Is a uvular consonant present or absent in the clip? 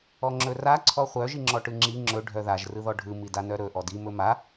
present